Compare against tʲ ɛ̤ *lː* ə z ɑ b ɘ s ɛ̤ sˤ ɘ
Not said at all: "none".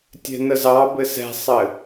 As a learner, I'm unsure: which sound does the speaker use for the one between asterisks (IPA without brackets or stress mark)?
n